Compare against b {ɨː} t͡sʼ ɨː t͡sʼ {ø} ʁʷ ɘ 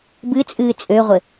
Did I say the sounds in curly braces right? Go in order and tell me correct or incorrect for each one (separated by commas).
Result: incorrect, correct